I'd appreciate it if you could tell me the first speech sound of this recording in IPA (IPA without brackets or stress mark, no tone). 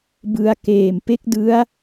b